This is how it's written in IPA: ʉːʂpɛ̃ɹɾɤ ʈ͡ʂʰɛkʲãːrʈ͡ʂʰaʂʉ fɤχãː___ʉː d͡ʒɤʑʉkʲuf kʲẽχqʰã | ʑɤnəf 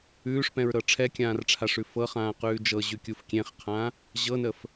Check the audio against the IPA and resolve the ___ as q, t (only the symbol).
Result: q